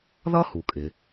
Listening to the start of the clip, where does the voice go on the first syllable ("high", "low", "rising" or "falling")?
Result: high